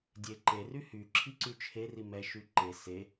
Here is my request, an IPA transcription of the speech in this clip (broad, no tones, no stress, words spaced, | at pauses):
dʲeǃery hy ǁʰiǀyt͡ʃʰeri mɛʃy ǃe se